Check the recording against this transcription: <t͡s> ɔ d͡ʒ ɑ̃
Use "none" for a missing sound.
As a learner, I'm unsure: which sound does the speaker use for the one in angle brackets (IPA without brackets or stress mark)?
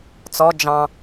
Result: t͡s